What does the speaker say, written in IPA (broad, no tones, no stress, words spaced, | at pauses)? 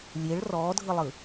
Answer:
lʲeɭ rɔːdʱɯlˠɯ